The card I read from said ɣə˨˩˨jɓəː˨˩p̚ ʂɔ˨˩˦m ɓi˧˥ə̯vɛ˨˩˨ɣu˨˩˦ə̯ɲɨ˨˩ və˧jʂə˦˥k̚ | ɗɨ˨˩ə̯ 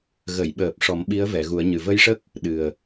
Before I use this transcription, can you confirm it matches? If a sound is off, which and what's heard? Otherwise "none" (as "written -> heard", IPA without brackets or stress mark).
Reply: none